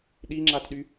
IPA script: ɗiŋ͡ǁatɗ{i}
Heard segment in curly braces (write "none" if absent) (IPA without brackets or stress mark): y